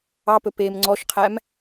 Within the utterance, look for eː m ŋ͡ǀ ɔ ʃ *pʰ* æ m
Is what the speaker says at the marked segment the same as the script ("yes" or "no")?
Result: no